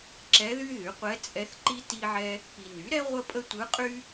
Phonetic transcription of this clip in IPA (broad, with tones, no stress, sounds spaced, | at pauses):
ǁ ɛ˧˥ ð y˥ ð y˩˥ qʷ ɛ˧˥ t͡sʼ ɛ˧˥ θ ǃ i˥ t i˥ ʕ ɛ˥ | p i˨ n y˩˥ ɾ ɛ˥ ʁʷ ə˥ pʼ ə˥ tʷ ɯ˧˥ qʼ y˥